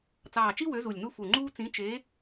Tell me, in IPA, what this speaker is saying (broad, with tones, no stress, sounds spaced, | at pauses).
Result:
t͡s ɑː˨˩ t͡ʃ i˦ w ø˨˦ z u˨˩ lʲ n u˦ f u˨˩ ŋ͡ǃ uː˦ t͡s ĩ˨˦ t͡ʃ e˨˦